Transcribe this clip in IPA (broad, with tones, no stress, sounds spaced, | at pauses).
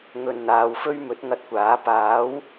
ŋ ɵ˨ n n̪ aː˨ w f ɵ˥ ɥ m ɵ˨˥ t̚ ŋ ɐ˧ t̚ kʷ aː˨˥ p aː˨˥ w